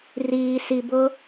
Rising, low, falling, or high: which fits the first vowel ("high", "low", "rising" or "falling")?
low